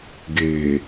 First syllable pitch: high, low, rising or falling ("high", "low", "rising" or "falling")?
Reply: low